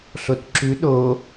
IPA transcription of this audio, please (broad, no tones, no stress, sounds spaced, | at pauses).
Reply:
ɬ o t ǁ ʉ ɗ o